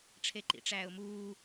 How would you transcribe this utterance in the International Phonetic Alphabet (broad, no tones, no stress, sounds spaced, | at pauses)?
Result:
ʈ͡ʂʰ e ǃ ḭ ʈ͡ʂ æː ʊ̯ m uː